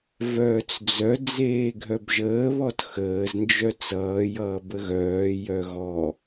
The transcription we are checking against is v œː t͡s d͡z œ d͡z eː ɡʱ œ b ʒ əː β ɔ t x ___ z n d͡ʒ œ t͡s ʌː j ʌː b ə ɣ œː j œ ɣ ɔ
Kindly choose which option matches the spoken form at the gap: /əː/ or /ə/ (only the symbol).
əː